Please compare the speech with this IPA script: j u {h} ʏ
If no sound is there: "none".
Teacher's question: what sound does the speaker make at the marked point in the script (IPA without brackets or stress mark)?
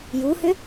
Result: h